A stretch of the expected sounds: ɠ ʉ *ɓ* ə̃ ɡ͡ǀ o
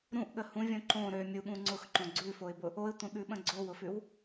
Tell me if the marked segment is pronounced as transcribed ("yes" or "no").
yes